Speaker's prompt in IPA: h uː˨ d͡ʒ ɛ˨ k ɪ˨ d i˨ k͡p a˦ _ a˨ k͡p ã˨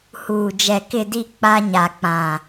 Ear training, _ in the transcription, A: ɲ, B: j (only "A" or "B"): A